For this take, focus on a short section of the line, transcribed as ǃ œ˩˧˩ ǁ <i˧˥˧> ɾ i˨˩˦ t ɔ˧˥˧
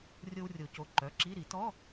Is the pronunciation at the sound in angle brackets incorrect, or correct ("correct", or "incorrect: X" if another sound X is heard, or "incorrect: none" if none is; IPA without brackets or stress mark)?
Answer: correct